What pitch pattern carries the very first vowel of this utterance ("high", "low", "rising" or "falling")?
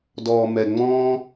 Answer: low